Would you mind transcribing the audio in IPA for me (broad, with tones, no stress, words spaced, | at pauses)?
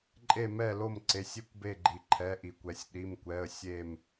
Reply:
ǃʼe˥˨mɛ˥˨lo˥˨m ǀe˩˧˩sʲi˧kʷbe˧˩ ɡ͡ǃi˩ǃʰɛ˩˧˩ʔi˩kʷɛ˩sʲ ɗi˩˧˩mkʷɛ˩˧˩ə̯ sʲe˧˩m